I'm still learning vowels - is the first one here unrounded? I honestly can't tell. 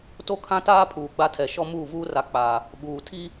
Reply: no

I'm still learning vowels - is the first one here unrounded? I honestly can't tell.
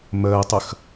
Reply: yes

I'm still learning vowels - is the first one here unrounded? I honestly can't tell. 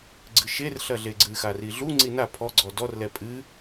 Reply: yes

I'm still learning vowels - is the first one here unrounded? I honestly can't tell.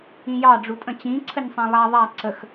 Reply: yes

